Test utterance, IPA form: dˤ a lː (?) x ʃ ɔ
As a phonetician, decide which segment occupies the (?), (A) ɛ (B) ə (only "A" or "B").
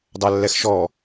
A